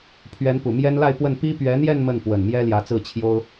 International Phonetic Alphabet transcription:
pʰɥɛ˧˥npu˨˩mjɛ˥n la˥˧ɪ̯pwə˥˩n pi˥ pɥɛ˧˥n̪jɛ˥˧n mə˥˩npwə˨˩nmjɛ˥ ljä˧˥t͡sɹ̩˥˩t͡ɕʰjo˥ʊ̯

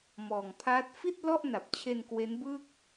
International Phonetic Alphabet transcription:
mɔː˨˩ŋpʰaː˦˥t̚ fi˥˩t̚ lɔ˥˩ʔna˨˩p̚t͡ɕʰe˧n kwe˦˥nbɯː˥˩k̚

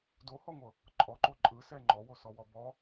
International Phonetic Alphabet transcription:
dohɔŋʷɤ | ǃʼɔǃo ǃʼɯsɛ ŋ͡ǃɔwosɔwɔ bɔ

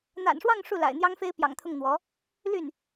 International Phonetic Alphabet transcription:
n̪a̰˨˩nʂwɑ˥˧ŋ ʂu˥˩la̰˨˩ɪ̯n̪jɑ˥ŋfe˥ɪ̯ pjɑ̰˨˩ŋt̪ʰʊ˥˩ŋn̪wɔ˧˥ | ly˥˩n

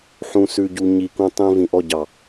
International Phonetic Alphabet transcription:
ħũ˨sʉ˨ɟu˨ ɲi˨ kũ˨tˤĩ˨ vĩ˨ʔɔ˦˨ɟɑ˨

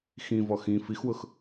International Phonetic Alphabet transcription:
xĩvɔ xĩ fixwʊx

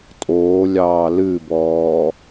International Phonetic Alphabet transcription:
tʼoːlʲɑː lɨbɔː

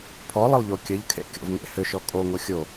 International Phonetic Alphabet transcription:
pʰɔlˠəlˠʎo kʲəʎkʰḛkʲɔ̰vŋḛ hʏʃɔ kʼoŋo xʲo

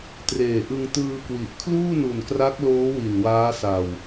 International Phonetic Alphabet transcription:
treː˨˩ʔɯ˧ŋ tɯː˧kwi˨˩ʔkʰluː˥˩ nu˨˩nkra˦˥k̚loː˦˥ wi˨˩nwaː˦˥ sa˧w

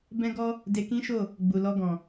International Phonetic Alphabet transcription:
bɛ̃˦ɡɔ˦ | de˧kĩ˦ʃo˦˨ | ɡ͡bu˨ lɔ˧ɡɔ̃˨

